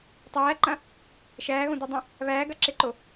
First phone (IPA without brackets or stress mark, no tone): tˤ